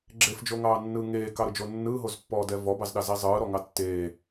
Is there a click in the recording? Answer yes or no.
yes